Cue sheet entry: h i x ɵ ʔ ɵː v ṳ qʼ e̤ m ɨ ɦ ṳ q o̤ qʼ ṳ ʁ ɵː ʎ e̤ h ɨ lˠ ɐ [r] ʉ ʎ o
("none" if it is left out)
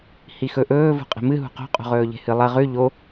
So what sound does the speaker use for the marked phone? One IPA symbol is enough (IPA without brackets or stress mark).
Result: ʁ